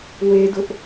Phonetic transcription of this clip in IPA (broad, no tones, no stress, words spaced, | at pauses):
wedʊʔ